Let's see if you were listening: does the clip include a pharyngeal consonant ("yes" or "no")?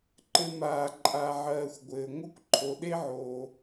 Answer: yes